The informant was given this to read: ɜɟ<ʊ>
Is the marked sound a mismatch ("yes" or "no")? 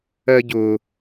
no